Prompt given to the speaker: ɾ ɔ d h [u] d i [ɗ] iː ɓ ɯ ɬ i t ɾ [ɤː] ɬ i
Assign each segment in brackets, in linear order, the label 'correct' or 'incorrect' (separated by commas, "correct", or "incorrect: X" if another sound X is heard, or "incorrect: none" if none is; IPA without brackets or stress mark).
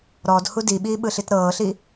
correct, incorrect: ɓ, correct